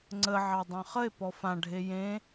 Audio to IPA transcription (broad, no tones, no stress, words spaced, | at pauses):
ŋ͡ǀə ʕɑdˤɑ̃χəe̯ pɔfã ɖʱejẽ